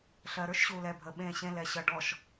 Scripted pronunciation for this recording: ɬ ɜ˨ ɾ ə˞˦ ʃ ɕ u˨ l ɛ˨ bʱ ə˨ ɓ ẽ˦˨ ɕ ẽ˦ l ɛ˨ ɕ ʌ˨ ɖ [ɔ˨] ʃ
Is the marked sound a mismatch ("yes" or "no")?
no